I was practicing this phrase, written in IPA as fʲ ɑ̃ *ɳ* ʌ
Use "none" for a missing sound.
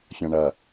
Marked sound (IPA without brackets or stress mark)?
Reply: ɳ